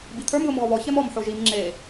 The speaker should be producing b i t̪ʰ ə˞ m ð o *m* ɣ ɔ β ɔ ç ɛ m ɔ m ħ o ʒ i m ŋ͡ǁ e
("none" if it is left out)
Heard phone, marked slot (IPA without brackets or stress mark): m